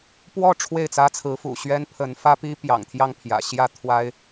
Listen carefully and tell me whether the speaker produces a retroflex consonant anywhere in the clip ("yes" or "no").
yes